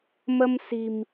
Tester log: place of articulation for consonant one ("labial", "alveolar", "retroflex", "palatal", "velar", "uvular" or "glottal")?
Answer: labial